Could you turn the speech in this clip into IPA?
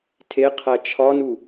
tʰeqʰæ t͡ʃʰɒnu

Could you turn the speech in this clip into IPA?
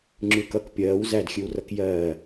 ŋ͡ǁʉːkʌk pʲɜːw zædxʲʉwrʌk jɜː

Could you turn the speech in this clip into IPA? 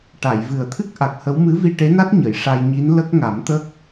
ʈa˨˩˨jvɨ˨˩ə̯t̪ʰɨ˦˥k̚ ʔa˨˩k̚hə˧˥w mɨ˧˥vi˧ʈe˧˥na˦˥t̚ ɲə˨˩˨jʂa˧jɲi˧˥n lə˦˥k̚ŋa˨˩˦mt̪ə˦˥k̚

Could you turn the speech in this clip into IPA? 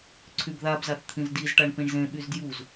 ǀʰybðabzaθ t̪ʰĩzdizʈaɳ pĩɳzẽɓyz djuz

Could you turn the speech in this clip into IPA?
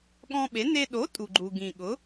ɠɔ̃˧ɓe˩˥ ne˧ ɗo˩˥ tʼu˩ɡ͡ǃu˩ ɡĩ˩ ɠʊ˩˥

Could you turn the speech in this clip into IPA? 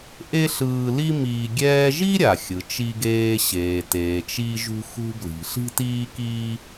ʔe˥ɬɯː˧li˥ miː˧ɡʲɛː˥ ʒi˥ɾʲa˩xʲɯ˩ t͡ʃi˧ɡeː˧ɕeː˩teː˩ t͡ʃi˧ʒṳ˧xṳ˧ bli̤˩ɬi̤˥tiː˥kiː˥

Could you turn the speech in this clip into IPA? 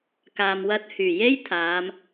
kaː˨mwɐ˧t̚hyː˨˩je˥j t̪ʰaː˨˧m

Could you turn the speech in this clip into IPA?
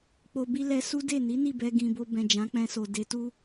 k͡po˨bi˧ lɛ˧su˦de˦˨ ni˨˦ni˦˨bɛ˧ ɡĩ˨bo˧ bɛ̃˨d͡ʒã˨˦k͡pɛ̃˧so˨ de˨˦tu˦

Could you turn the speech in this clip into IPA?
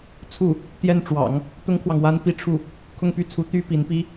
t͡sʰu˥˩ | t̪jɛ˥˩nʈ͡ʂwɑ̰˨˩˦ŋ | t̪ʊ˥ŋkʰwɑ˨ŋwa˥n pi˥˧ʈ͡ʂʰu˥˩ | kʰʊ˥˧ŋpy˥˩ t͡sʰu˥ t̪y˥ pi˧˥npi˥

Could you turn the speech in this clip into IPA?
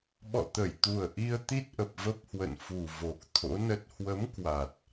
ɓɔ̰˧˨t̪ə˧˩jt̪u˨˩ə̯ ʔi˧ə̯ t̪i˦˥t̚ʔə˨˩p̚ və˦˥p̚hwə̰˧˨nfu˨˩ vo˨˩k̚t̪ʰo̰˧˥nə˦˥t̚ hwə˨˦m kwa˨˩t̚

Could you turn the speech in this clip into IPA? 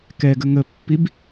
kɛɡə ŋəpːib

